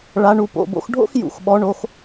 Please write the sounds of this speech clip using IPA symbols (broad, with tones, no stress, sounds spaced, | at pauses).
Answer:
ɭ a˩˧ ɳ u˩ p o̰˩ b o̰˧ x ɖʱ o̰˥ x j ṵ˩ x ɓ ɔ˩˧ ɳ o˩˧ x